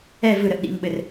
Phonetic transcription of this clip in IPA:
ɛ v ɯ ɾ ə ʔ ɗ ḭ ŋ ɓ ɘ r

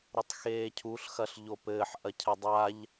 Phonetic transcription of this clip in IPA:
ɾ o tˤ x eː cʰ u ɬ x ɐ ɬ ʎ o p ɘː ħ ʔ ɐ cʰ ɛ dˤ a ʎ

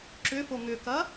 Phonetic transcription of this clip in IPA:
ǁ ʏ f o ŋ ʏ k ɐ

